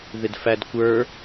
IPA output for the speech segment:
ð ɪ d f æ d kʷ ə˞

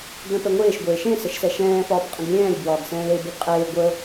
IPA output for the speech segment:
ɡ l ə̃ p ɛ ŋʷ eː ʃ ɡʷ eː ʃ ẽ s ə ʃ s ɛ ʃ ɛ̃ː f ɒː p qʼ ə̃ ɡ lʲ ɛ̃ː lʲ b w ɒː ɡ s ɛ̃ː l e b e ɡ qʼ eː ɡʷ ə

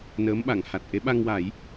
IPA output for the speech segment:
n əː˧˥ m ɓ a˨˩˨ ŋ h a˨˩ t̚ ʔ e˧˥ ɓ a˧ ŋ w a˨˩˦ j

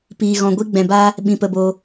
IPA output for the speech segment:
p iː˧ ɣ ɔ̃˧ ɡʷ i˦ ɡ͡b ɛ̃˧ b a˦ | ɓ ĩ˧ p ə˧ b o˧

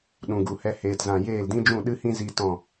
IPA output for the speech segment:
ɗ ũ˨ ɡ u˨ h ɛ˧ h eː˨ t z ã˨ j eː˦˨ l d ĩ˦ d͡ʒ ũ˦˨ ɗ ɨ˦ h ĩ˦ z i˧ t ɔ̃˦˨

